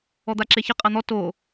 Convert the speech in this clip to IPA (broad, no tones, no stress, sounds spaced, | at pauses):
ɔ d̪ a ǁ e ç ɪ qʼ a n̪ ɔ t o